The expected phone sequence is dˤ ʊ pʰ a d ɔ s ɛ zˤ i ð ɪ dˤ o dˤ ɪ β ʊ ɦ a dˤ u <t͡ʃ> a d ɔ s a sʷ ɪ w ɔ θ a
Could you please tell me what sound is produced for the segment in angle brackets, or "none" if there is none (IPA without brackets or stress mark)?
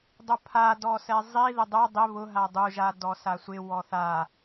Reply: ʒ